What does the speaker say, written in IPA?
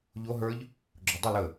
ʎ o ɦ ə˞ ʎ | ɡ͡ǁ o dˤ ə l ə

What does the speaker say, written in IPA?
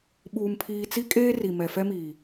ɓ uː˨ m pʰ iː˨ t͡s i˦ kʼ eː˦ r i˨ m ɛ˨ f ɛ˦ m iː˨

